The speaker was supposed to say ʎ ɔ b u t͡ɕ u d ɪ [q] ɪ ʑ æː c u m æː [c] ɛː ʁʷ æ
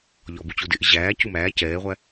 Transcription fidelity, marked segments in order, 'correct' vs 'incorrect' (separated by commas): incorrect, correct